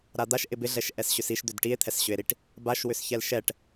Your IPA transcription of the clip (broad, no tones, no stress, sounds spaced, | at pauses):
ɾ a d̪ a ʃ ʔ ɪ b ɪ ɮ ɛ ʃ ʔ ɛ s ɕ ʏ s i ʃ d̪ ʏ d ʈ i e̯ t̪ʰ ɛ s ɕ ʏ e̯ ɾ i ʈ | b a ʃ w ʏ s ç ɛ l ʃ ɛ ʈ